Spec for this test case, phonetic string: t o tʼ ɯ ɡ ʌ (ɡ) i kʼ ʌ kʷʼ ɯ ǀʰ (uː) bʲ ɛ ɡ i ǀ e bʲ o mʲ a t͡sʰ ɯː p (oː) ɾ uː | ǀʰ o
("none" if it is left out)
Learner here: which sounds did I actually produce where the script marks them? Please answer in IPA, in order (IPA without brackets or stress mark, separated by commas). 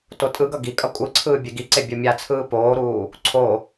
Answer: ɡ, ɯː, oː